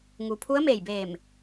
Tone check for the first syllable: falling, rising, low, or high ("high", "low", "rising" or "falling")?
low